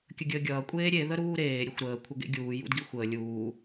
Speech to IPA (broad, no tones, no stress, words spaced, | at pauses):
kʲəɡʲəːɡʲʌː kʷʼeːɾʲe ðəɾuːɾeː ɾʲəxʷɾəː kʷʰəɡḛɡʲuː jṵdɡixʷəː lʲuː